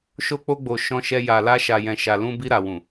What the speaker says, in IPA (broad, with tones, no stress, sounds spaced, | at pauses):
ʃ o˧ k͡p o˧ ɡ͡b o˨ ʃ ɔ̃˧ ʃ ɛ˧ j a˨ l a˧ ʃ a˨ j ɛ̃˨ ʃ a˨ l ũ˧ b i˧ ɾ a˨ w ũ˨